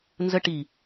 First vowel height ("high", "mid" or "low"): mid